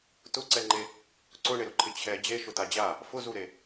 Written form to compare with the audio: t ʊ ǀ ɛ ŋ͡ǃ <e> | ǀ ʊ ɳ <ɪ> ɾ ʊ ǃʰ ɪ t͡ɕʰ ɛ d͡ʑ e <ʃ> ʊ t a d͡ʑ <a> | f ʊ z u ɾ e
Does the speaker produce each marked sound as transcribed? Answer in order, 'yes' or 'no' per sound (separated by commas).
yes, yes, yes, yes